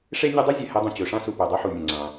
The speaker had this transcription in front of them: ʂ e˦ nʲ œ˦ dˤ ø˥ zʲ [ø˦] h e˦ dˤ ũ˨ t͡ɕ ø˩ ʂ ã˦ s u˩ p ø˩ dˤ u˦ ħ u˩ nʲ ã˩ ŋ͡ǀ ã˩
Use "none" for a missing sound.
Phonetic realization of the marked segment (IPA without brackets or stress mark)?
ø˩